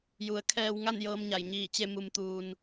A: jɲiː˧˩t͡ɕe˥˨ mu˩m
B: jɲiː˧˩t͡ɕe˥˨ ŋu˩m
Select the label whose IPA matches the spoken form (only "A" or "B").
A